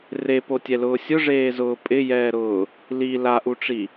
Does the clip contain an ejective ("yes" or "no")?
yes